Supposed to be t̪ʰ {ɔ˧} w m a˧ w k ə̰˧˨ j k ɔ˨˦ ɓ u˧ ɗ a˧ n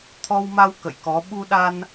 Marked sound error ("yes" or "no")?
no